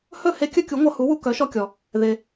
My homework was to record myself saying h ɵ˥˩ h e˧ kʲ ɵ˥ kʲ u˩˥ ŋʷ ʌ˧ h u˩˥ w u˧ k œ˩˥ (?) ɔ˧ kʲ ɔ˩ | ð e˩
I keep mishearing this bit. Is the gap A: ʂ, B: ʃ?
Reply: B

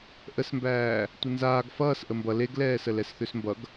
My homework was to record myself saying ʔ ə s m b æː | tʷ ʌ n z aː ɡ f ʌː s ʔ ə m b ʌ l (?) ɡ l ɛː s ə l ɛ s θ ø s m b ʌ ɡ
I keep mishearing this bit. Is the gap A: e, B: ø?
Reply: A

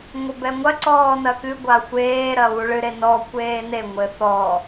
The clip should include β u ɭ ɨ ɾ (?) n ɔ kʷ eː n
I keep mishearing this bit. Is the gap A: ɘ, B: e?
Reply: B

